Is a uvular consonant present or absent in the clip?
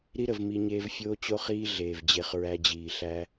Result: present